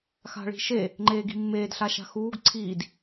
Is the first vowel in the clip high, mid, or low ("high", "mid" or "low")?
low